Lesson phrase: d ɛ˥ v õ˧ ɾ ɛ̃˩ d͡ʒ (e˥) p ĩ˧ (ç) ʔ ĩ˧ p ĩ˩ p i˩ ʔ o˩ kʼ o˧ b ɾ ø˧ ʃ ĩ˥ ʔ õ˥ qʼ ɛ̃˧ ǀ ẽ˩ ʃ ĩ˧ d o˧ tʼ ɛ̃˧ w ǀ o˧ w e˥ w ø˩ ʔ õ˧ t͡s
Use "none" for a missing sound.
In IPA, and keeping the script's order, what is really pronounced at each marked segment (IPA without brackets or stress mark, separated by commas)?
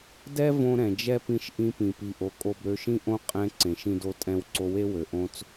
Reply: ɛ˥, ʃ